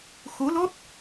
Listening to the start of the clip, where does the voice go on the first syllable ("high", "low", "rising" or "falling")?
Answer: rising